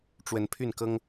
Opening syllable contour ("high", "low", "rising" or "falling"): rising